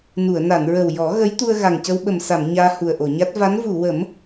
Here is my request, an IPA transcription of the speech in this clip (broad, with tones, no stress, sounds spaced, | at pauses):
n u˨˩˨ ə̯ n a˨˩˨ n ɹ ə˨˩ w j ɔ˨˩˦ ɣ ə˧˥ j t̪ u˧ ə̯ ɣ a˨˩ ŋ c ə˧ w ɓ ə˨˩ m s a˨˩˨ m ɲ aː˧ h u˨˩ ə̯ ʔ o˨˩˨ ɲ a˦˥ t̚ v a˧˥ n v u˨˩˨ w ə˨˩˦ m